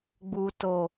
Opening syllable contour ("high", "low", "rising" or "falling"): low